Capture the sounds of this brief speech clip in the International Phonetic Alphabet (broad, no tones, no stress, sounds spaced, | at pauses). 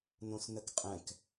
n õ s n ə k qʼ ɛ̃ k